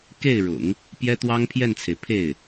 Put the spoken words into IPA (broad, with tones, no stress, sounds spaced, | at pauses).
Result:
k e˥˩ ɪ̯ ɻ ʊ̰˨˩˦ ŋ | p j ɛ˥ t̪ w ɑ˥ ŋ pʰ j ɛ˥˩ n t͡sʰ e˩ ɪ̯ pʰ e˥˩ ɪ̯